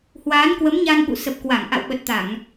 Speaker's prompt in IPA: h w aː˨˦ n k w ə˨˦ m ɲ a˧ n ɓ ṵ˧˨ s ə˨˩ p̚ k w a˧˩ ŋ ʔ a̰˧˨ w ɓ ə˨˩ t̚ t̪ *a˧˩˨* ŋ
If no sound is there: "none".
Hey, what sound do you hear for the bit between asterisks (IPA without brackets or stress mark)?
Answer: a˧˩˨